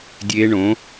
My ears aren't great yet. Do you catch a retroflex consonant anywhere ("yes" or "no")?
yes